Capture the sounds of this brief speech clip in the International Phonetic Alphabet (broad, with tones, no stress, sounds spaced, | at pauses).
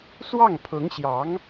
s w ɑ˥˩ ŋ pʰ ʊ˧˥ ŋ ɕ j ɑ˧˥ ŋ